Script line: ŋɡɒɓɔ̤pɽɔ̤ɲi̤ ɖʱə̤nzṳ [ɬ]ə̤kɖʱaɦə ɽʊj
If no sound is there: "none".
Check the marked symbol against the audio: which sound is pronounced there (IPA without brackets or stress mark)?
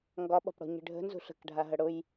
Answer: ɬ